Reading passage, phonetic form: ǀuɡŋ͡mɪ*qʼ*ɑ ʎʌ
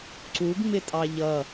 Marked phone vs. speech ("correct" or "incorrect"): incorrect